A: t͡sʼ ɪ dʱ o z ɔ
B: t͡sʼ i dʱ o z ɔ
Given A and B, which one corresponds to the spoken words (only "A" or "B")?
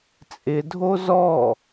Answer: A